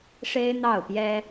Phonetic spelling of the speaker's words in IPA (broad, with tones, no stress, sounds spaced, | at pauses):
ʂ e˥ ɪ̯ n̪ ɑ˥˩ ʊ̯ p j ɛ˥